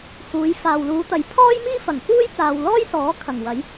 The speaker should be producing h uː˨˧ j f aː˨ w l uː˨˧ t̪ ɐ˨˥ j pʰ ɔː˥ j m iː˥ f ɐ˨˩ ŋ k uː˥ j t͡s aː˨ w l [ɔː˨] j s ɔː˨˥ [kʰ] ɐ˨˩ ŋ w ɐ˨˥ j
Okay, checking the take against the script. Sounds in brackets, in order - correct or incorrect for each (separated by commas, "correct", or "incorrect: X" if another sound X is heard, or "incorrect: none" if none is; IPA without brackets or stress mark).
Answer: incorrect: ɔː˥, correct